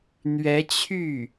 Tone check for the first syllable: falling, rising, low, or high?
rising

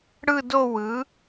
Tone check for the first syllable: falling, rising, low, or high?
falling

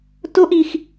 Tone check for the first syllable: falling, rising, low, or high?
high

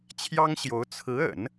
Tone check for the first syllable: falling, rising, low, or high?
high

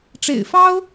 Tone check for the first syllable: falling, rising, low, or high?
low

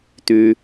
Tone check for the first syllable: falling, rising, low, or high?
high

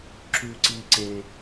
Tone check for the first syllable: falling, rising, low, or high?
low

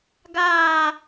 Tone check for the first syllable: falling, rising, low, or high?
falling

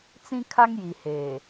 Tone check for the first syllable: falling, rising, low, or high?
high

